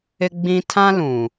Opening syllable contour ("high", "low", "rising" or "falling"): high